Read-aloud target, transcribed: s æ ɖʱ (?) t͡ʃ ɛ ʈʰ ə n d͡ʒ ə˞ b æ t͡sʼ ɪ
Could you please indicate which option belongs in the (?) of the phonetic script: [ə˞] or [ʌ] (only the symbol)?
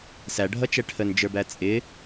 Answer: ʌ